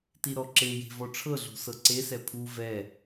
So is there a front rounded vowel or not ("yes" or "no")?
no